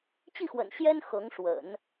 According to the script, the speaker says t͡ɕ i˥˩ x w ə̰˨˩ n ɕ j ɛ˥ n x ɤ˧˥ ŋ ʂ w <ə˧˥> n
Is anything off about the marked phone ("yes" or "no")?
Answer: yes